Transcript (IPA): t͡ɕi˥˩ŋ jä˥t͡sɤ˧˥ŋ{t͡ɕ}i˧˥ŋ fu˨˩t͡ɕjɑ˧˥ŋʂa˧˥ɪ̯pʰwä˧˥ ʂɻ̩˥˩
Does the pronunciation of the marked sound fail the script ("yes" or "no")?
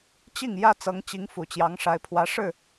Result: no